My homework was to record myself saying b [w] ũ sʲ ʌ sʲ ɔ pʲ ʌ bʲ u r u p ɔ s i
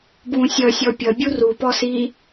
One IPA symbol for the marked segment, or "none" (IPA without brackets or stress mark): w